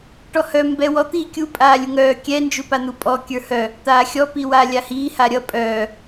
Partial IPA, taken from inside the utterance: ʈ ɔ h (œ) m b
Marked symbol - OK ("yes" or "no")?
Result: yes